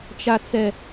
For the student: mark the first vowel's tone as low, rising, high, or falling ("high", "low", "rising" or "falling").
low